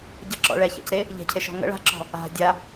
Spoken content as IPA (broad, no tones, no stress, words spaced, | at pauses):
ɟəǁɔ̰ ɭɛça̰cɾe | ʎe̤cʰeʃɔ̤ ŋə̰ ɭa̤ǁɔ̤ | a̤ dʲa